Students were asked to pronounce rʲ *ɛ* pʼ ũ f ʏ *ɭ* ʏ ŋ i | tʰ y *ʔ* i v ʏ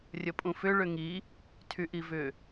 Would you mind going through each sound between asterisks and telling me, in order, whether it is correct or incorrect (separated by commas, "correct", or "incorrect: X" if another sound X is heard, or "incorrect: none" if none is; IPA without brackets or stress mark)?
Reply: incorrect: ə, correct, correct